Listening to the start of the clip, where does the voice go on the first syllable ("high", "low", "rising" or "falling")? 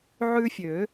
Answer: high